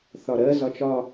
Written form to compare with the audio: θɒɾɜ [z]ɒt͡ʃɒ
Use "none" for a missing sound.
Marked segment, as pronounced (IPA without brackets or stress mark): z